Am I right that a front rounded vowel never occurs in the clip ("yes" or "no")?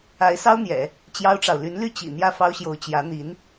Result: no